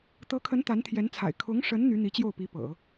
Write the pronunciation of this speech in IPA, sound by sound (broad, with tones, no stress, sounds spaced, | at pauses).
t̪ ɤ˧˥ kʰ ə˧˥ n t̪ a˧˥ n t̪ʰ j ɛ˧˥ n t͡sʰ a̰˨˩ ɪ̯ kʰ ʊ˧˥ ŋ ʂ ə˧˥ n n̪ y˧˥ n̪ i˧˥ t͡ɕ j o˥˩ ʊ̯ p i˧˥ p ɤ̰˨˩˦